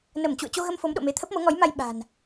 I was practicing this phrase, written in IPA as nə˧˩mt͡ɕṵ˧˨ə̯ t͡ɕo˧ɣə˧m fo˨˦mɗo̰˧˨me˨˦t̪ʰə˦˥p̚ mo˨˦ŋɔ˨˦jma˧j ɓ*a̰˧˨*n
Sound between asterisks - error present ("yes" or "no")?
yes